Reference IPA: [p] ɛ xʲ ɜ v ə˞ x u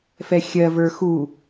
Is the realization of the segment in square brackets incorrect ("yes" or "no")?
yes